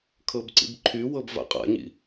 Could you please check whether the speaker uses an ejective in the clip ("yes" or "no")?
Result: yes